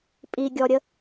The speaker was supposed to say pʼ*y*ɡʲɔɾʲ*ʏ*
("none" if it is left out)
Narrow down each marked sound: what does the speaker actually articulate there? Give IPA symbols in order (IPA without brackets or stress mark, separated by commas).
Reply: i, ə